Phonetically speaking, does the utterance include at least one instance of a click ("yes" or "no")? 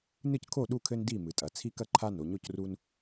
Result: yes